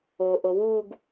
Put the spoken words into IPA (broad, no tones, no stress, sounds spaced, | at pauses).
o ʔ o w u ɡ